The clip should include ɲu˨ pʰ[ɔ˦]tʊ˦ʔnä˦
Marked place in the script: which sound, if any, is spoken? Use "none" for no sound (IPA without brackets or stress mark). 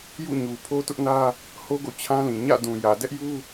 o˦